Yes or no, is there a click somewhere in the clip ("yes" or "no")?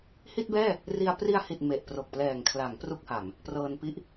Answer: no